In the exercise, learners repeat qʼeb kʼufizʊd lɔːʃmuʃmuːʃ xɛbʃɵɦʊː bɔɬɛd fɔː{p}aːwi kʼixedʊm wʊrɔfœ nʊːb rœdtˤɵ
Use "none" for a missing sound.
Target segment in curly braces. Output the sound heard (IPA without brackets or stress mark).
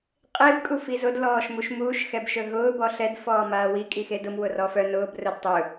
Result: m